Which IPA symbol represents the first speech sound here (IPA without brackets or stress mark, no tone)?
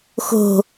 x